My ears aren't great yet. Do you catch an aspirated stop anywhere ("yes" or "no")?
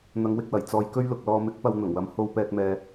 no